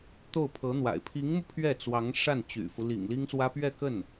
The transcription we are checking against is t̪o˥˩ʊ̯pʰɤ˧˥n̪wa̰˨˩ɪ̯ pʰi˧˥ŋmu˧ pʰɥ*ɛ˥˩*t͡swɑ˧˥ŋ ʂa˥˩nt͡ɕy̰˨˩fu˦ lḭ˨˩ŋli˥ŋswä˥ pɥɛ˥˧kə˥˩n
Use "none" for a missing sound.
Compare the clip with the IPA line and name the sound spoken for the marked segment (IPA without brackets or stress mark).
ɛ˥˩